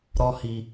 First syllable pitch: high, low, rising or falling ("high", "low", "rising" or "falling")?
high